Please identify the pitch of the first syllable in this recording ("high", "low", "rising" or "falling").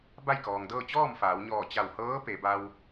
falling